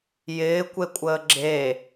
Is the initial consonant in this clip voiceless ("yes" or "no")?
no